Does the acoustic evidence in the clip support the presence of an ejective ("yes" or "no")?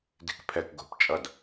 yes